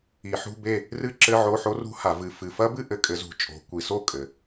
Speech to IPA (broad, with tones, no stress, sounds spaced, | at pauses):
i˨˩˦ ħ ṳ˧˥˧ b e˥˨ | r ɨ˦˥ ǁ ɘ˧˥˧ ʕ o˧˥˧ ħ o˦˥ r ṳ˦˥ h a˨˩˦ v ɨ˨˦ f ɨ˨ f ɐ˦˥ b ɨ˥˨ ʔ ɘ˧˥˧ kʼ ɘ˨˦ z ṳ˨˩˦ t͡ʃʼ o̤˨˦ kʷ i˨˦ s o˥˨ kʼ ɘ˨